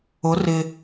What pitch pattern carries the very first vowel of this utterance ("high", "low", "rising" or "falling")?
rising